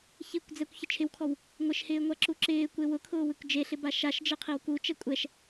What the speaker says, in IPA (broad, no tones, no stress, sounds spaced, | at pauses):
ç i kʷ d͡z ɛ kʷ ç ɪ t͡ʃʰ ɪ w kʰ ɔ w | ŋʷ ɪ ʃ h ɪː ŋʷ a ǁ u ǁ ɪː kʷ e w ʊ kʰ ʊː w ɪ kʷ d͡ʒ e ɬ ɪ b a ʃ a ʃ d͡ʒ e qʰ i w k u t͡ʃ ɛ kʷʼ ɛ ʃ